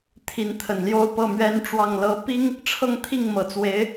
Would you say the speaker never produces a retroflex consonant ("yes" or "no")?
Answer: no